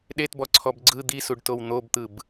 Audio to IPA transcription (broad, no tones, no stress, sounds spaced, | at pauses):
ɗ e t b ɔ ǀʰ ɔ b ɡ͡ǀ ɯ d̪ i s u ɖ t o w n̪ o b t̪ ɯ b